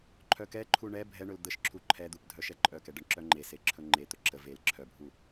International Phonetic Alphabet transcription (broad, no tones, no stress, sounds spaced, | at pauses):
ǃʰ œ k ɛ ǃʰ u ɳ ɛ bʱ ɛ ɳ ɵ l d̪ ə ʃ ǁʰ u ǃʰ ɛ d̪ u p dʱ œ ʃ ɛ ǃʼ œ k ɛ ɖ ə ɳ ǁ œ ŋ͡ǃ e s e ǁʰ ɵ ŋ͡ǃ e t̪ ɵ ǁ ə v e l ǁʰ œ bʱ u